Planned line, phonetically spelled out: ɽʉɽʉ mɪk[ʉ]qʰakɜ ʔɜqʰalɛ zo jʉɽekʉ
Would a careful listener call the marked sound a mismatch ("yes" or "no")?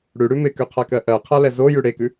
no